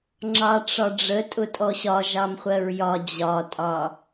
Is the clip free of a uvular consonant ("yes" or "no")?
no